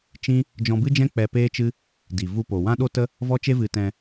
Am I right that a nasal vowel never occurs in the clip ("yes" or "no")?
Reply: no